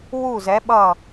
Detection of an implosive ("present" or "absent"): present